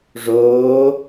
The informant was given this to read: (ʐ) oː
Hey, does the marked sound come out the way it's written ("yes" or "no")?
yes